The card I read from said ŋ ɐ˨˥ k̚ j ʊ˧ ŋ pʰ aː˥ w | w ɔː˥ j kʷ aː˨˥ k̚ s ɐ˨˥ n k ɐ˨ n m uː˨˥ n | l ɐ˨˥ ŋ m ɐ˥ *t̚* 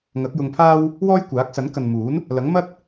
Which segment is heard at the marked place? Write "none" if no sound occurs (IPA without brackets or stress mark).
t̚